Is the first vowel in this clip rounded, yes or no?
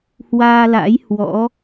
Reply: no